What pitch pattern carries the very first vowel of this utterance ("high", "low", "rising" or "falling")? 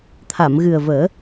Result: low